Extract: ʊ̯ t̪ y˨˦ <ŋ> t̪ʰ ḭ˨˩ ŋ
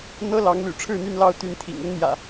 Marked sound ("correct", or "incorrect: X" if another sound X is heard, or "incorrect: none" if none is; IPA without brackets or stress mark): incorrect: n